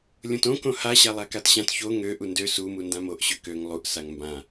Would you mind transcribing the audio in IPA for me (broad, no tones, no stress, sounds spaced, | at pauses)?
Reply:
lʲ õ t õ k õ h a ɕ a lˠ a k a t ɕ ã t ç o ŋ ø ʔ u n d ø s u m u n d ã m o ʔ ɕ ø k ø ŋ lˠ u ʔ s a ŋ m b ã